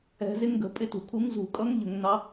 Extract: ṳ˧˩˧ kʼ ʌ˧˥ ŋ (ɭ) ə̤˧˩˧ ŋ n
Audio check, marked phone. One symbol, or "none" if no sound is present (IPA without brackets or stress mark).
ʎ